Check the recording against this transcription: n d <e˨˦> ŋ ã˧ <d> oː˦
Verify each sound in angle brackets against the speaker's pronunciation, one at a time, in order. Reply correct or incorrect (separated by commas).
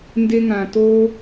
incorrect, incorrect